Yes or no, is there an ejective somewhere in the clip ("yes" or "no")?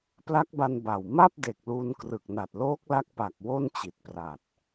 no